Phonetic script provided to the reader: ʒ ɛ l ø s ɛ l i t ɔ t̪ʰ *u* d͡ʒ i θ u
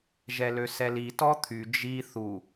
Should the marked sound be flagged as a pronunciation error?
yes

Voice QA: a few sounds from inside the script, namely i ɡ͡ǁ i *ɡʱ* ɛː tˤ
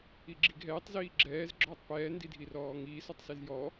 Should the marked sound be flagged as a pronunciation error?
no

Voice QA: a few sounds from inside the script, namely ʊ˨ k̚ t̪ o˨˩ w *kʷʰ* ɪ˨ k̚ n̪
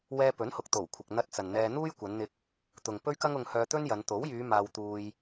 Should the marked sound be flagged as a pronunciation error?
no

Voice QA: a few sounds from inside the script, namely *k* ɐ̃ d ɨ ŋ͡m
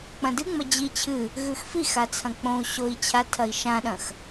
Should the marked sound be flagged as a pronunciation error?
yes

